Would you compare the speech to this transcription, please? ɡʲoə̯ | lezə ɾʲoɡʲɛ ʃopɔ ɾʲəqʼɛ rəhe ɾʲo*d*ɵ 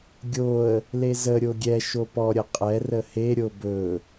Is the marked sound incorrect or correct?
incorrect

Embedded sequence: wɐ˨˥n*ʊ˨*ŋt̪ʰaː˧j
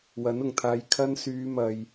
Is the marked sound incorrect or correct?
correct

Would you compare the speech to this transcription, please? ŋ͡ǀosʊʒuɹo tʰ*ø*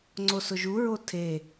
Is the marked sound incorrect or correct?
incorrect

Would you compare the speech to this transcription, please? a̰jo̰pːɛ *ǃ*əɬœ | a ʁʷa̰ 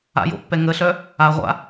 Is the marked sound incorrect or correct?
incorrect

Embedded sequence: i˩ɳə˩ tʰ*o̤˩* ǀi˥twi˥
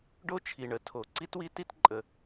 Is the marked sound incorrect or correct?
incorrect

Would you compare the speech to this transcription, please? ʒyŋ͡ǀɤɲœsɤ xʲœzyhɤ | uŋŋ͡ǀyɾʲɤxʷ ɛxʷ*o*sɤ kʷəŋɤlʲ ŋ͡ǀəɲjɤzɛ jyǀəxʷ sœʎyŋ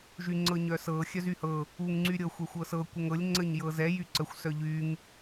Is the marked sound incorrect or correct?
incorrect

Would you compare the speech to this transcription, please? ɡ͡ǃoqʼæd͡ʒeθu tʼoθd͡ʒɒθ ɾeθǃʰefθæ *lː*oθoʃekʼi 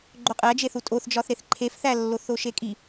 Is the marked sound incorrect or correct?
correct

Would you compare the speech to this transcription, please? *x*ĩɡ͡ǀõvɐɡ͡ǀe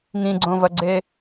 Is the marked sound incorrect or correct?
incorrect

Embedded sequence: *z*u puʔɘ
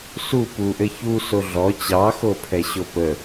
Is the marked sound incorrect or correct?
incorrect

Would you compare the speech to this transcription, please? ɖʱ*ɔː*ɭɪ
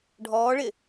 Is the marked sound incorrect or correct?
correct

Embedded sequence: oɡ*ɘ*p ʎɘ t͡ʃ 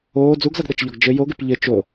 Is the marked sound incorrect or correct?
incorrect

